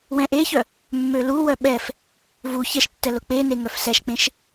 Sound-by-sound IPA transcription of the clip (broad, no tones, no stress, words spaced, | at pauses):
wɛ̃ʔeçœ | mːøluwœ ɓɛf | vu çɛʃtːɛ lʊk͡pene ŋœfsɛʃk͡pẽʃ